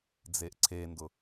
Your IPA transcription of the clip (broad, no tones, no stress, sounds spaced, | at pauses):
d͡z e ʔ ǀʰ e n d ʊ